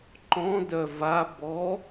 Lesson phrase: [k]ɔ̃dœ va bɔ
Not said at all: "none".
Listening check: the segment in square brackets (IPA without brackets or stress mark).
ǃ